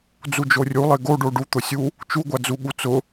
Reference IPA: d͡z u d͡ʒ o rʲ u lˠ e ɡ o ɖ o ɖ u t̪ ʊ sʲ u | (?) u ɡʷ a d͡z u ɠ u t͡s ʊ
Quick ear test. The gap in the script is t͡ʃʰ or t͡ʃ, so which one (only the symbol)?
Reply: t͡ʃ